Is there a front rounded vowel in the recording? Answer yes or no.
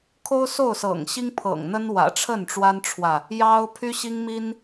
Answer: yes